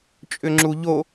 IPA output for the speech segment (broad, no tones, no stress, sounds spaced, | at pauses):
t͡ʃʼ ʏ ŋ͡ǁ u ʎ o